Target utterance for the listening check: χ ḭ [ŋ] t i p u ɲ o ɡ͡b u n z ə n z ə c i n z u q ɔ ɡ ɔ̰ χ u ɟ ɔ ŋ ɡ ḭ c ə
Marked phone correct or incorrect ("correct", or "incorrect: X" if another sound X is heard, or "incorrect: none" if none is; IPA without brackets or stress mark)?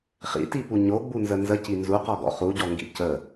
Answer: incorrect: none